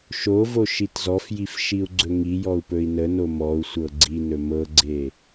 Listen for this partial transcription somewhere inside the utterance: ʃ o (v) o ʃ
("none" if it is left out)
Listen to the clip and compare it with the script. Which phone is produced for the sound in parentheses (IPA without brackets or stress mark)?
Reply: v